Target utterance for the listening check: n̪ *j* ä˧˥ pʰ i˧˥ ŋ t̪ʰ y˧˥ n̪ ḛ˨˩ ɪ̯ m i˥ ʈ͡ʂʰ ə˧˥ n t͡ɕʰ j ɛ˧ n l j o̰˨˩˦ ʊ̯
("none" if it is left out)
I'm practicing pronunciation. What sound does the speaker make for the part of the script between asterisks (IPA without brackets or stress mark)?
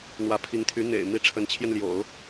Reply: w